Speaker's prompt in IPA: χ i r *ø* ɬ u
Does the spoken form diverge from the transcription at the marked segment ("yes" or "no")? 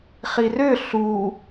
no